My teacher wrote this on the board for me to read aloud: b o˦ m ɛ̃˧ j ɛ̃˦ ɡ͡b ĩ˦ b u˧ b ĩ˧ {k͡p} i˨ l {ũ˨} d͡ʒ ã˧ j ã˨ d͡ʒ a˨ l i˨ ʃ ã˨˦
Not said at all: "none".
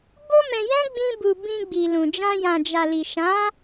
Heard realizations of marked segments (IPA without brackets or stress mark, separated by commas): ɡ͡b, ũ˨